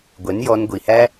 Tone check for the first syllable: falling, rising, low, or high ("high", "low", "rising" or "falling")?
rising